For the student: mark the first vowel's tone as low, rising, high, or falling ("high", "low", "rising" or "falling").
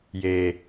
low